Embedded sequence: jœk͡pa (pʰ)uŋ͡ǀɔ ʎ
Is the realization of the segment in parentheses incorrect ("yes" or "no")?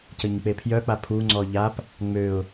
no